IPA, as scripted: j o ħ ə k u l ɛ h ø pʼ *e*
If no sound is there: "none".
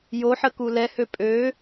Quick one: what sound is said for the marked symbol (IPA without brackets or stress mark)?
ø